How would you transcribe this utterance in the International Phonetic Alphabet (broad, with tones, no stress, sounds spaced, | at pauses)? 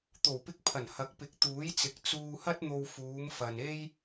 t̪ o˨˩ w p ɪ˧ k̚ pʰ ɐ˨˩ n h ɐ˨˥ k̚ p ɪ˨˥ k̚ t̪ uː˨˥ j t͡s ɪ˨˥ k̚ t͡s uː˧ h ɐ˥ t̚ n̪ o˧ w f uː˨˧ m f ɐ˨ n e˥ j